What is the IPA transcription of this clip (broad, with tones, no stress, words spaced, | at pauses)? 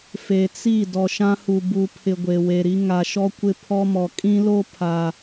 fe˨t͡si˦˨ dɔ˨ʃã˦hu˨ bu˨pʰɪ˨ ɡʷe˨we˨ɾi˦ ŋa˨ʃɔ˦ kʷɪ˦pʰɔ˦mɔ˨ kʼĩ˦lo˦ pʰa˨